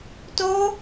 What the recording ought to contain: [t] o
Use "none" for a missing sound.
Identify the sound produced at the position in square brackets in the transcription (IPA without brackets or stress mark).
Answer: t